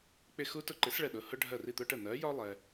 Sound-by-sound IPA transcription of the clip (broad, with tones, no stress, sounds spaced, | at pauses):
k͡p ɪ˥˨ x u˥ t ʊ˥ ǃ ɪ˨˥ s ɭ ɛ˧ ɗ ʊ˩˧˩ h ʊ˥ ɖʱ ɜ˥˨ r i˥˨ t̪ ʊ˥ ʈ ə˥˨ n̪ ɜ˨˥ j ɒ˥ lˠ ɛ˧